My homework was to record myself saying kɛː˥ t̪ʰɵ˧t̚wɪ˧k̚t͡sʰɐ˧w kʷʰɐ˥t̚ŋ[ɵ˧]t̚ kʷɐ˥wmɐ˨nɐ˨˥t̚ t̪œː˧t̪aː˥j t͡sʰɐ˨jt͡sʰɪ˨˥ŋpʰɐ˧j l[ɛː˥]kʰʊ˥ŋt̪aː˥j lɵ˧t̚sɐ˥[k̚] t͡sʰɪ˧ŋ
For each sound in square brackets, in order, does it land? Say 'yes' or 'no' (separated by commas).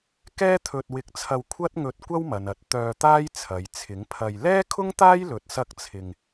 yes, yes, yes